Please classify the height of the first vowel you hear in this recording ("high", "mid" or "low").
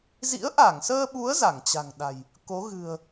high